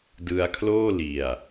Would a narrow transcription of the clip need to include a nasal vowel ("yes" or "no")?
no